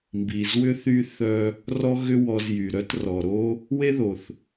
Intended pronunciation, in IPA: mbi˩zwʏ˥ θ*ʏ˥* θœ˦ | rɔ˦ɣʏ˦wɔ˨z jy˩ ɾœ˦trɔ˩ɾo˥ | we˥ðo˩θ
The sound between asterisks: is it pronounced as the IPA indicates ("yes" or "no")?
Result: no